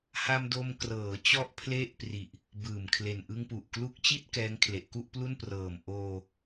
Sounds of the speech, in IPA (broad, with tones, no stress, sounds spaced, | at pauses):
h a˧ m d o˧ m k r ɤː˩˦ t͡ɕ ɔ˦˥ ʔ pʰ l e˦˥ ʔ p r i˨˩ ʔ | b ɯː˨˩ m kʰ l e˨˩ n ʔ ɯ˧ ŋ p u˨˩ ʔ k l u˦˥ k̚ t͡ɕ i˥˩ t̚ k ɛː˦˥ ŋ kʰ l e˨˩ ʔ k u˥˩ ʔ p l u˥˩ n p r ɤː˨˩ m ʔ oː˧